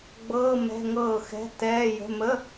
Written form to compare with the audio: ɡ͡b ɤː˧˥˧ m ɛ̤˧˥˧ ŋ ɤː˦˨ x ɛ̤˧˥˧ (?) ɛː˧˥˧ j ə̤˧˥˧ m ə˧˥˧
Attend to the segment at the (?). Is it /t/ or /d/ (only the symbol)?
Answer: t